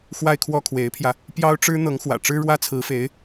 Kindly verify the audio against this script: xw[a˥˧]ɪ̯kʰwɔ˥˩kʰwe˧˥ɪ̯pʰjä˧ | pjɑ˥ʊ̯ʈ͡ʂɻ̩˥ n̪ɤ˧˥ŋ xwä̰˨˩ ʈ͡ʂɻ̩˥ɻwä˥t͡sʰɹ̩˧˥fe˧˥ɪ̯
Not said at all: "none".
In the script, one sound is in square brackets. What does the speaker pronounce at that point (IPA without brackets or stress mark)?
a˥˧